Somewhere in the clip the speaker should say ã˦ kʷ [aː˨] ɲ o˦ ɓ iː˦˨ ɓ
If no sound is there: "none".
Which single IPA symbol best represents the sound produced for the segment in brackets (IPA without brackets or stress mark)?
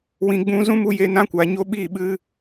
aː˨